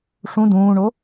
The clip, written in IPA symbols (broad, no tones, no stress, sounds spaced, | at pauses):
ʂ ũ d ũː ɳ o